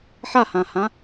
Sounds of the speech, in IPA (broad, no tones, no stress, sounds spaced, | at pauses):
ħ a h ã h ã